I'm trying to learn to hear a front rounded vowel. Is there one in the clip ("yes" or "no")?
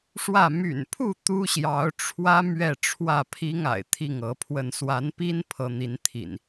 yes